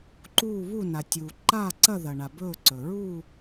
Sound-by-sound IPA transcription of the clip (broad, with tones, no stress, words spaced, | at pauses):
ǃuː˥˧βu˥˧na˨ tʲuː˨ǃaː˥˧ǀɐ˥˧ ðɐ˨ɳa˨ bɵː˥˧ǀɵ˨ ɹu˥˧